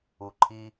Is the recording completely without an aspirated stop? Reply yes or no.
no